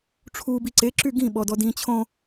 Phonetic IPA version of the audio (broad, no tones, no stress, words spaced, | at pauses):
ʈ͡ʂʰu biǀe ǁyɡĩ ɓɔdɔdĩ t͡ɕʰõ